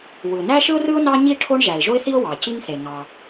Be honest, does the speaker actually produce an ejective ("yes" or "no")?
no